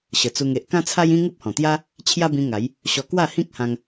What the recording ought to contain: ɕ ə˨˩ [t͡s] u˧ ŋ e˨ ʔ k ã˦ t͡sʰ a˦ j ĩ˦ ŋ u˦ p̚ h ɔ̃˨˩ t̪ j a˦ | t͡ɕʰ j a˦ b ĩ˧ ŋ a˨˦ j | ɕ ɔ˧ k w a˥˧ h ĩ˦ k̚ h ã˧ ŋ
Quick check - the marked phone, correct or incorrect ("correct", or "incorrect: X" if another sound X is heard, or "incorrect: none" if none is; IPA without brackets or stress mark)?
correct